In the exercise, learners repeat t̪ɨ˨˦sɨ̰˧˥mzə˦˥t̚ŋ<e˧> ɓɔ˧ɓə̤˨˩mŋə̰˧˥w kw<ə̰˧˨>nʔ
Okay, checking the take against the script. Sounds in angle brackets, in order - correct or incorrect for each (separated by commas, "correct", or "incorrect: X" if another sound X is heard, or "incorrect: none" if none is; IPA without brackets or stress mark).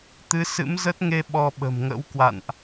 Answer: correct, incorrect: a̰˧˨